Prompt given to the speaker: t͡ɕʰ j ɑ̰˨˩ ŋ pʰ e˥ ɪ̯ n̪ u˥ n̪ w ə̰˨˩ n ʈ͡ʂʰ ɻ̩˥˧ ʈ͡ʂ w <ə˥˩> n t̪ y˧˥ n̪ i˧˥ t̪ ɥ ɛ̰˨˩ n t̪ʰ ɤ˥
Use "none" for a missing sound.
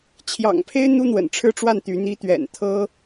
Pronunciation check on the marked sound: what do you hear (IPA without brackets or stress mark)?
a˥˩